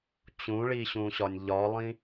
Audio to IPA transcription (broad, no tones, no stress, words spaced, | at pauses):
t͡ɕũɭiɕũɕɒnʲ ʎɒlˠĩ